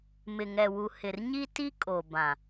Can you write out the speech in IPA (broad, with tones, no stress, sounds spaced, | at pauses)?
m ɪ˨ ŋ ɛ˨ w u˨ h ɪ˨ r ɲ i˦ t i˦ kʼ o˨ b ã˨